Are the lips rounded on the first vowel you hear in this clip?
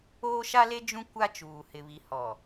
yes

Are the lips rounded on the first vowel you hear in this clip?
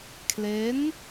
no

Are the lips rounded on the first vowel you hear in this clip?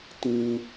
no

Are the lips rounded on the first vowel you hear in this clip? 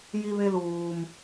no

